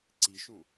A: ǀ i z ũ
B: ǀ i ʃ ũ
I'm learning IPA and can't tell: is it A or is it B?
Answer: B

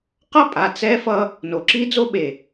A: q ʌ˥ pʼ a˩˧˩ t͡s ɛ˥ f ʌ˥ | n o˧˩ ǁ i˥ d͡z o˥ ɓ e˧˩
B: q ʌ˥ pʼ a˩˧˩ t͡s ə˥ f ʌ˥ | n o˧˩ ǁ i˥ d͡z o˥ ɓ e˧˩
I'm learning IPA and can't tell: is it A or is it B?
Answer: A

